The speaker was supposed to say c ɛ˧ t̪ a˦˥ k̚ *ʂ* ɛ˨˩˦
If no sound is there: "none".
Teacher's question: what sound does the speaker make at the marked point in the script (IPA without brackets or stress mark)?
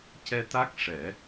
ʂ